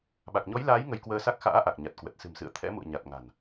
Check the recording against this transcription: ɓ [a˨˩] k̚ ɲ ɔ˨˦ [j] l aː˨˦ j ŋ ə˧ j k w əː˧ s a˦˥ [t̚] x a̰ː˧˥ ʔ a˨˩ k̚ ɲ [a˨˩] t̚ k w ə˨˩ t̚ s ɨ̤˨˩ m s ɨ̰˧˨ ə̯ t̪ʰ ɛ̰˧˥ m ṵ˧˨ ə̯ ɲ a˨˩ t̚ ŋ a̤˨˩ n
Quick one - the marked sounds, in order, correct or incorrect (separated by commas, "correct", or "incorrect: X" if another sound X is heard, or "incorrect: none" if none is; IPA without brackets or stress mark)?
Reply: correct, correct, incorrect: k̚, correct